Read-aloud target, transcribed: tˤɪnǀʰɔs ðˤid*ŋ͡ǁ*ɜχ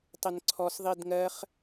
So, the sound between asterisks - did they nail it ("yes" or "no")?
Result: no